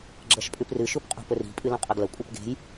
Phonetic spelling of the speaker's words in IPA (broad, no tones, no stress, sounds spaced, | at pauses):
ɡ͡ǁ ɐ ʃ pʼ ʉ p r ɨ ʃ u p qʼ ṳ p ɵ r i̤ pʼ ɨ l õ qʼ ɐ ɡ l ɐ kʷʼ e p ɡ e̤ j